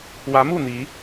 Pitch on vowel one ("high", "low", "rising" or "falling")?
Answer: rising